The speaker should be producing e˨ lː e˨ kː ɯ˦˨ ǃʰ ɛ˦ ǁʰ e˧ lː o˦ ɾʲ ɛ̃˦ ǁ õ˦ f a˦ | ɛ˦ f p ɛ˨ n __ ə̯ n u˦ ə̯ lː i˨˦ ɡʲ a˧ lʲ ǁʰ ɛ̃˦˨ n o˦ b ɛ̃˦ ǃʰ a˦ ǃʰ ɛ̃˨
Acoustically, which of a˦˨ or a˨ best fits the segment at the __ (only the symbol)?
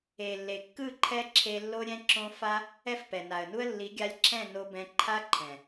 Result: a˨